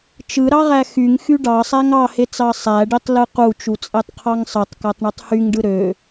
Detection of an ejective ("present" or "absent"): present